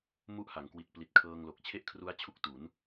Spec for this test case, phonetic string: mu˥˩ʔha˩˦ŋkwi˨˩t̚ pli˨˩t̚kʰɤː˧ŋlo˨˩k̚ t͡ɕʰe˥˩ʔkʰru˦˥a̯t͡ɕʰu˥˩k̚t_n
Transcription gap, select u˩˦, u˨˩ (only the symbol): u˩˦